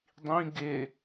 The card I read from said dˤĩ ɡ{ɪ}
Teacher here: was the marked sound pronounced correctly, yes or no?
yes